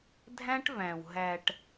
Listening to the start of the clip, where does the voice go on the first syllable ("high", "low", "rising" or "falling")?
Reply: high